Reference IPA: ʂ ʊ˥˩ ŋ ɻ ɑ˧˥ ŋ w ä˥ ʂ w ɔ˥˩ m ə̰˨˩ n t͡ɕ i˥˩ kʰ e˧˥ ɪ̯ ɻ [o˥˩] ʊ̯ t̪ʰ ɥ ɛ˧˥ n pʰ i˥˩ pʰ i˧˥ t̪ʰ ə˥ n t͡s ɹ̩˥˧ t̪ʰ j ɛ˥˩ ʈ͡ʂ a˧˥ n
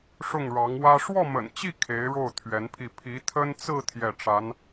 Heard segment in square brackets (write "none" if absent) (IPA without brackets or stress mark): o˥˩